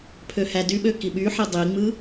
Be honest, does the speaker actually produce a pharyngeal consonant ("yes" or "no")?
yes